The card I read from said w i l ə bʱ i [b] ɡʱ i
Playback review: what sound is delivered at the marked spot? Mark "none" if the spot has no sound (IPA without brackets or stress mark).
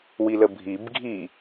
b